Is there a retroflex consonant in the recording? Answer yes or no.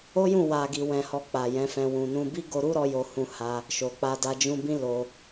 no